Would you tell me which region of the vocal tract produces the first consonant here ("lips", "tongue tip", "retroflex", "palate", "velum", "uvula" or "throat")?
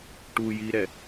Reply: retroflex